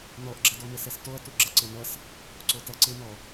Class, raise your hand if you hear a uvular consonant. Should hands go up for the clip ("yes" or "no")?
no